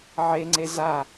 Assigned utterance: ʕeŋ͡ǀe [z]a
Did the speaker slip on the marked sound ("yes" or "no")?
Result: no